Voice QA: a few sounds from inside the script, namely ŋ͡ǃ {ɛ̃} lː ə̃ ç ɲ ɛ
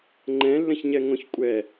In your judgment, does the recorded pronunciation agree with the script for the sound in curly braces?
yes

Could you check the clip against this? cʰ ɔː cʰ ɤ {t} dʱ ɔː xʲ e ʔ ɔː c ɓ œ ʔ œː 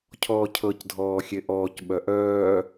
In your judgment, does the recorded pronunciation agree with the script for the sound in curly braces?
no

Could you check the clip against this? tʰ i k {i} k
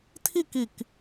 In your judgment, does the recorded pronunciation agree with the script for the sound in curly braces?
yes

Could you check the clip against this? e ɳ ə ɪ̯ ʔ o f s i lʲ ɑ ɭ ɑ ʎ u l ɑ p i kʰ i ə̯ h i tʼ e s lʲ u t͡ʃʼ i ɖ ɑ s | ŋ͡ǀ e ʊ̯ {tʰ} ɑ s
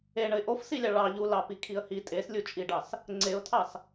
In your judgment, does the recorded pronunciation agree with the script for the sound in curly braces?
yes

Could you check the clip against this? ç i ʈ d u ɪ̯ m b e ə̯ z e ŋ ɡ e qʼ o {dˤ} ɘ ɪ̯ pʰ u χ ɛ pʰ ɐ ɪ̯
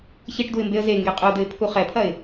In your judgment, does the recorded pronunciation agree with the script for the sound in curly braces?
no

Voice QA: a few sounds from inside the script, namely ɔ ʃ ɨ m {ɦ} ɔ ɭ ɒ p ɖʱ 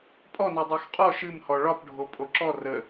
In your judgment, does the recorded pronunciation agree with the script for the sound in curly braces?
no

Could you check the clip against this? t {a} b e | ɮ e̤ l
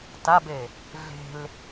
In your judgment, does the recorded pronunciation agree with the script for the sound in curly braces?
yes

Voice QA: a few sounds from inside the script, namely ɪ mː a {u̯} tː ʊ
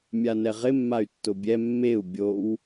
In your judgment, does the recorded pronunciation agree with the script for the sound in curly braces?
no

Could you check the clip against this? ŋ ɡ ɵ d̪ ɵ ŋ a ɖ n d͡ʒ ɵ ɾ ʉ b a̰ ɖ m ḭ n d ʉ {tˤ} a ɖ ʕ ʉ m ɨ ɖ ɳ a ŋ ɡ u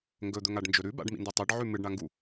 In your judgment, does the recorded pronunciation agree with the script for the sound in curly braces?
yes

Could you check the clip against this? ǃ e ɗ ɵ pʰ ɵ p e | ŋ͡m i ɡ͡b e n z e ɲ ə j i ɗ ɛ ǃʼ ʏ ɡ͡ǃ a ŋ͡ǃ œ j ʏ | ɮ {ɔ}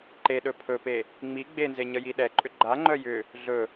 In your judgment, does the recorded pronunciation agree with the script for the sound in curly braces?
no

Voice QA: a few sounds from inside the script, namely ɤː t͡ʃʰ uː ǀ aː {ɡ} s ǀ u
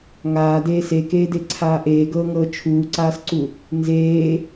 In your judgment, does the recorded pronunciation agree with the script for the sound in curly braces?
no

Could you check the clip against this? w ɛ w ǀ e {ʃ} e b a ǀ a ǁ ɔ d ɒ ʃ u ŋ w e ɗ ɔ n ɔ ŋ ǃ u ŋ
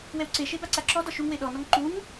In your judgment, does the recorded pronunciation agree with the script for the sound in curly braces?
yes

